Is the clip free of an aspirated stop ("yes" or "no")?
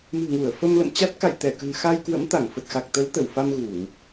yes